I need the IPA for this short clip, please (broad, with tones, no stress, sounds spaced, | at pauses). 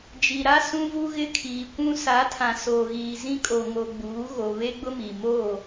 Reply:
d͡ʒ i˨ ɾ a˦ s ũ˦ v u˦ ɣ ɪ˦ kʰ iː˨ kʷ ũ˦ s a˨˦ tʰ ã˨ s o˨ ɣ iː˨ z ĩ˦ kʼ o˨ ŋ o˨ ɡ͡b uː˨˦ ɣ o˨ β e˦ ɡ͡b ʊ˦ m i˨ m o˦˨